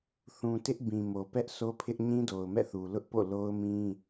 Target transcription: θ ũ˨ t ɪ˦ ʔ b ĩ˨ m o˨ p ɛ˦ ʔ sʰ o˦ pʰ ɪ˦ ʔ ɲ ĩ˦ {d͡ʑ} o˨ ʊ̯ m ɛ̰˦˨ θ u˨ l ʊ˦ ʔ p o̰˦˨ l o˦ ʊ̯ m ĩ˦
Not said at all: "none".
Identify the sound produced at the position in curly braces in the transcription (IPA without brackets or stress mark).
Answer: d